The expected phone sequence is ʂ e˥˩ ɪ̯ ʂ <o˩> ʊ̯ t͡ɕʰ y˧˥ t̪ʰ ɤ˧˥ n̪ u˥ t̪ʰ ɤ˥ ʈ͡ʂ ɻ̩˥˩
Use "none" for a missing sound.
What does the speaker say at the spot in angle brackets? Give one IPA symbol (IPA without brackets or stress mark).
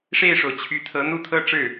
o˩